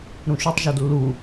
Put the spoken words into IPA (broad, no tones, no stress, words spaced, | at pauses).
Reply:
ɾũʃytˤʒod lːu